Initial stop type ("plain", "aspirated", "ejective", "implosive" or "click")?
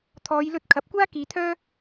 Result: aspirated